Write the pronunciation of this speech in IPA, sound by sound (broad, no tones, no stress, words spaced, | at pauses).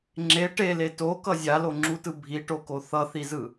ŋ͡ǁe ʈele tokʌ zʲaloŋ͡ǁutɯ bʱiʈoko θʌθizɯ